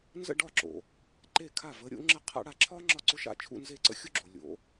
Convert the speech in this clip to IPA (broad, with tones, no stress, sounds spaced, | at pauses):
n z ə̰˥˧ ɖ ɒ˥˩ ǁ o̰˩ | ǃ e˥˩ kʰ a˥˩ v ə˨˦ ɾʲ o̰˨˦ ŋ͡ǁ ə˥ qʰ a̰˥ ɽ a˥˧ ǁʰ ɒː˥ ŋ͡ǁ ɒ˥˩ ǀ ʊ˥ ʃ a̰˥˩ t͡ʃʰ ṵ˥˧ n z e˥˩ ǀ ə̰˥ xʲ u˥ ɡ͡ǁ o˩ lʲ o̰˨˦